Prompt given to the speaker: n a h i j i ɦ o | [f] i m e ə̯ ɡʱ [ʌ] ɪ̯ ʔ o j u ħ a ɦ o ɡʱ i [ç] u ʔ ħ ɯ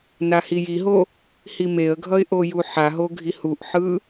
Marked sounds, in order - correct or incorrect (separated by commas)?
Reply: incorrect, correct, incorrect